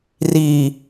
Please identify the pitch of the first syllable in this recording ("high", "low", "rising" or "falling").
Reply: low